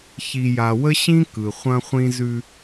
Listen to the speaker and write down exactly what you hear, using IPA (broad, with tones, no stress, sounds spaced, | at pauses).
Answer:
ç i˨ j a˨ w ə˦ ɕ ĩ˦ k ɯ˨ χʷ ɐ̃˦ χʷ ĩ˦ z ʉ˦